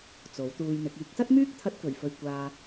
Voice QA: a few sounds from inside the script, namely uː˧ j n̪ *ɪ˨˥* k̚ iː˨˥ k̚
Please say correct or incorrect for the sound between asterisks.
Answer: correct